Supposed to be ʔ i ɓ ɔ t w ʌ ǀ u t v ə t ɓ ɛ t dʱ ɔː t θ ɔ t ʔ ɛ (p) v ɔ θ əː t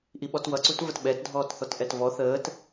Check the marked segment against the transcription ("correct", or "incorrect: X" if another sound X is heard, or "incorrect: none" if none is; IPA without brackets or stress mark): incorrect: t